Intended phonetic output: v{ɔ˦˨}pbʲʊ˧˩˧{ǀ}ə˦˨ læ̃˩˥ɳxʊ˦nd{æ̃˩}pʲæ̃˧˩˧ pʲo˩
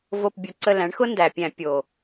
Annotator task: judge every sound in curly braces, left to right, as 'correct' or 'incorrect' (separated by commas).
incorrect, correct, incorrect